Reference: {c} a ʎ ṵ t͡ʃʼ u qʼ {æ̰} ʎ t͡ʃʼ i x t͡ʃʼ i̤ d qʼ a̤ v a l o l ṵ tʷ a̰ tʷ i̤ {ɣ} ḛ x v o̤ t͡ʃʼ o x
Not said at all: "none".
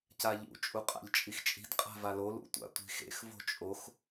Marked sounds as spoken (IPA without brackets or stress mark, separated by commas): c, a̰, x